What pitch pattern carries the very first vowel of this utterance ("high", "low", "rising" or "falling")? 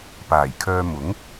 low